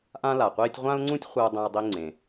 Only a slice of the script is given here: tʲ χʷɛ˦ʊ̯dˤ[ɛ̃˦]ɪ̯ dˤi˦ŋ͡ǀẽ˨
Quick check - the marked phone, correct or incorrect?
correct